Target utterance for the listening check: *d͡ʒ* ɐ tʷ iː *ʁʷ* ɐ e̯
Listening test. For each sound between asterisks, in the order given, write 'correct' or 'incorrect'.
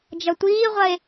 correct, correct

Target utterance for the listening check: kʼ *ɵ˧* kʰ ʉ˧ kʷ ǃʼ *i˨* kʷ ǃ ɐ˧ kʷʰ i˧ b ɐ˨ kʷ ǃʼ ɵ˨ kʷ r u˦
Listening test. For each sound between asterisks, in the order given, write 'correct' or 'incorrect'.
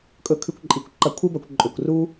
correct, correct

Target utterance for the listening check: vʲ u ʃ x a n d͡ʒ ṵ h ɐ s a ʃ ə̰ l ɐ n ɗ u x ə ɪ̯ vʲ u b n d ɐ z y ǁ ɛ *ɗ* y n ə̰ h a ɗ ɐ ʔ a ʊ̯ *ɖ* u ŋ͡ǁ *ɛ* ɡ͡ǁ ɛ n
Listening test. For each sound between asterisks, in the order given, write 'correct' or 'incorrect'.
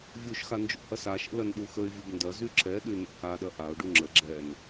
correct, correct, incorrect

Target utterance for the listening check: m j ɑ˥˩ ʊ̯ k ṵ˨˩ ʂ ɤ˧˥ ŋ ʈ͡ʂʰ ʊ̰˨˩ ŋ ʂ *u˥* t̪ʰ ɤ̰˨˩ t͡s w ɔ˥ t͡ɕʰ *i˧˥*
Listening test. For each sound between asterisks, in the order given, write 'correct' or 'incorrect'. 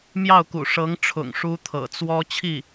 correct, incorrect

